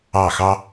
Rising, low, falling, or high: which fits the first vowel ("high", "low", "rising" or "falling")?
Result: falling